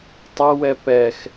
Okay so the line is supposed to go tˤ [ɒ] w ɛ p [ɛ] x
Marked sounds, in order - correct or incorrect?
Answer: incorrect: ʌ, correct

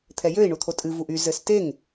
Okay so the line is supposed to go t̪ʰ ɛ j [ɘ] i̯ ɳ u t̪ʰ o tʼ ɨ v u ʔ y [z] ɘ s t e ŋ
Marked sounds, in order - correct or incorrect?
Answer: incorrect: ø, correct

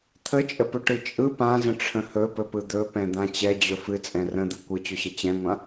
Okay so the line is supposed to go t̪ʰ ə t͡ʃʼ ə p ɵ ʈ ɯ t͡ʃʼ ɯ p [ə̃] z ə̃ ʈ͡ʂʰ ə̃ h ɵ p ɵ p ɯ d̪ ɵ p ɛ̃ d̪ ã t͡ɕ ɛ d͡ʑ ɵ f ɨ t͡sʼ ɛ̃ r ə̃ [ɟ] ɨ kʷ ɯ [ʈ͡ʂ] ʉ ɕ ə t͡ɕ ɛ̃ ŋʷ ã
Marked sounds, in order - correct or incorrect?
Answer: incorrect: ã, incorrect: d̪, incorrect: t͡ɕ

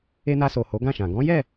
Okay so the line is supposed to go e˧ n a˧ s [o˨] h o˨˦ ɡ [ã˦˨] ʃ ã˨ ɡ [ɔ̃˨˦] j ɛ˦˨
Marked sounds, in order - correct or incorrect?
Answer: correct, correct, correct

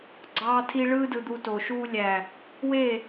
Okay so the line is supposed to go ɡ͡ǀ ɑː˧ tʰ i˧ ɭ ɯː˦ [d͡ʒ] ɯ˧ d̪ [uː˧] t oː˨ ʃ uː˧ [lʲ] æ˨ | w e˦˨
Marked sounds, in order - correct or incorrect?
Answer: incorrect: d, incorrect: u˧, correct

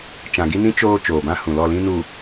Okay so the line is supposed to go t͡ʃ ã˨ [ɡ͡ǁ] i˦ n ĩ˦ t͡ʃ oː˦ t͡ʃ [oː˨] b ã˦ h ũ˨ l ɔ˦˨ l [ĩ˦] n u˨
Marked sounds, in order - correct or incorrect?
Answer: incorrect: ɡ, correct, correct

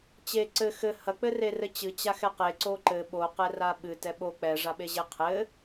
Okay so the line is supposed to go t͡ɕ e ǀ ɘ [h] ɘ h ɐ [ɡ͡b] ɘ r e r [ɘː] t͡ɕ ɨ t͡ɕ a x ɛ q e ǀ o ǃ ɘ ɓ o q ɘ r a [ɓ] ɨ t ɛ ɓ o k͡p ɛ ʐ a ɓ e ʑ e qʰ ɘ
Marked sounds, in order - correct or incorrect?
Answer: incorrect: x, incorrect: k͡p, incorrect: ɘ, correct

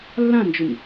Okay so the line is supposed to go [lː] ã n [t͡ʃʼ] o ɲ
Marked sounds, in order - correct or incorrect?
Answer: correct, incorrect: d͡ʒ

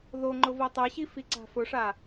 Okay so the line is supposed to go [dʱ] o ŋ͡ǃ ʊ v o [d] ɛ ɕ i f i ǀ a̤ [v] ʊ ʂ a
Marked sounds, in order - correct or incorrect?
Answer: incorrect: ð, incorrect: tˤ, incorrect: f

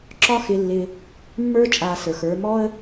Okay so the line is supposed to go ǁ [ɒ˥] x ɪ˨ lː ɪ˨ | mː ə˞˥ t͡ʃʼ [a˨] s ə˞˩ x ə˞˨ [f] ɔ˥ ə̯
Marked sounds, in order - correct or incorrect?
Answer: correct, correct, incorrect: m

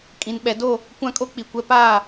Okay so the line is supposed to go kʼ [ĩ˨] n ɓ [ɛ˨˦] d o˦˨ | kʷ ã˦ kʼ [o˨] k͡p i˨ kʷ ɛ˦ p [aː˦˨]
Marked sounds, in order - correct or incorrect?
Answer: correct, correct, incorrect: o˦, correct

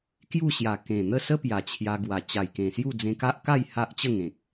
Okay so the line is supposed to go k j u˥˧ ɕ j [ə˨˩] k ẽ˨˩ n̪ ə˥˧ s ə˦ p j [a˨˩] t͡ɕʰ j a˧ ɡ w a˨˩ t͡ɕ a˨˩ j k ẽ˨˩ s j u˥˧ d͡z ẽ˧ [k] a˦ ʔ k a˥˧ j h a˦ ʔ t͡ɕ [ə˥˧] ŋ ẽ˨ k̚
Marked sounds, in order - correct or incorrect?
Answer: incorrect: a˨˩, correct, correct, correct

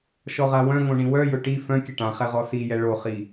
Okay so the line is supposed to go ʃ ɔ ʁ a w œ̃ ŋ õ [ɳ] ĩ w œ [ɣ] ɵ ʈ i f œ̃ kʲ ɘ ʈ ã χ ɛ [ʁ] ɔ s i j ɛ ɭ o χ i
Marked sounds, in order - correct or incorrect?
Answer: correct, incorrect: j, correct

